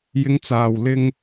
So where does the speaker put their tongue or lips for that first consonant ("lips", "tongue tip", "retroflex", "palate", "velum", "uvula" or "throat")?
palate